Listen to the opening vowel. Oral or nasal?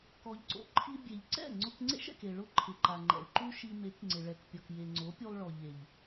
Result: oral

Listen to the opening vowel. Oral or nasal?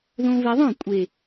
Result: nasal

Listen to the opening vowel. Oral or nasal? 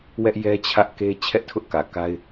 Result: oral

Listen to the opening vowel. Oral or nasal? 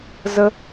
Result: oral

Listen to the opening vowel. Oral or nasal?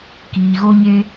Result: oral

